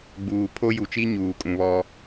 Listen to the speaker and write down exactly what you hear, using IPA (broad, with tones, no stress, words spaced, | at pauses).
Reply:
ɡ͡buː˨pʰo˦ju˨t͡ʃi˦ ɲuː˨kʼũ˨βɔ˦